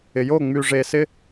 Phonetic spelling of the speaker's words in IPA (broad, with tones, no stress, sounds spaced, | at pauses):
ɪ˨ j o˦˨ ŋ͡m y˨ ʐ e˨ s ɪ˧